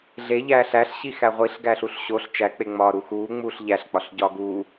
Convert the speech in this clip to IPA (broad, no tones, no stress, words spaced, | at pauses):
ɮeʎæːɬ æɬɕixæ ʁʷiɬ ɡæɬuɬɕoɬ t͡ʃæk͡peŋ͡mɒːɾu xuːŋ͡muːɬ ʎæɬk͡pɒɬɟɒː ɡuː